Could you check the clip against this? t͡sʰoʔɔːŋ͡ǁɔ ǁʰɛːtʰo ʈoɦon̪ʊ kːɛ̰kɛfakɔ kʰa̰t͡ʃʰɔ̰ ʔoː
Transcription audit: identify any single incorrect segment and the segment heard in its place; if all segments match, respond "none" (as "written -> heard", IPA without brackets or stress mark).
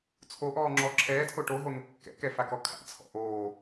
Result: t͡ʃʰ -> t͡sʰ